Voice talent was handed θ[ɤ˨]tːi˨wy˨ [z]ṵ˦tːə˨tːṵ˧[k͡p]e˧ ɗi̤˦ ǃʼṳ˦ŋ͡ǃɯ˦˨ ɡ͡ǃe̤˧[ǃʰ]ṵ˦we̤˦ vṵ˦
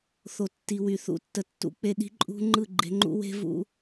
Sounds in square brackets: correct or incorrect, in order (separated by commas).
incorrect, incorrect, correct, incorrect